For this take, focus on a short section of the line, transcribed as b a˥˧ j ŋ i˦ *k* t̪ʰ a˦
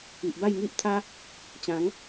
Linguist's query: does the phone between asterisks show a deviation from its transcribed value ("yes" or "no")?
yes